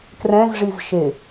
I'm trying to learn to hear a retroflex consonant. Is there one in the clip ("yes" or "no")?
yes